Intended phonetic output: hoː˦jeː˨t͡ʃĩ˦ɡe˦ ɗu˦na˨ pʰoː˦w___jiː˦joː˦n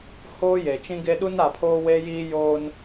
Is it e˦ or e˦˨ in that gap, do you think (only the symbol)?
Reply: e˦